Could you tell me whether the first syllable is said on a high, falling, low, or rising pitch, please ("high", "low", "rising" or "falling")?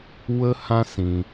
high